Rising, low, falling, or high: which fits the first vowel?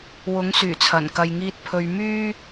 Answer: rising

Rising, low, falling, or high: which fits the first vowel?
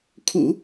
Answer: low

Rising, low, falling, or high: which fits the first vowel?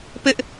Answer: high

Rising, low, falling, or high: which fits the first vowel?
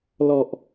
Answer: low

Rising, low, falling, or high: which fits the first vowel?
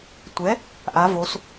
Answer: rising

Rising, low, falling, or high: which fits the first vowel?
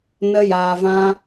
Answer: high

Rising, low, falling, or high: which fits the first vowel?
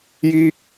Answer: high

